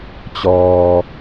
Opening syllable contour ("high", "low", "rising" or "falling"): low